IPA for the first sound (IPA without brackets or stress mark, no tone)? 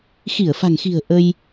x